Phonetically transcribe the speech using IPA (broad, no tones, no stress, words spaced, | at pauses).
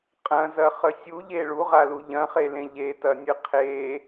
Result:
qʼɐ̃zɐχə sʲuʎe ɭuʁalu ʎɐ̃χelẽ ʎetɐnʲɨ qʰe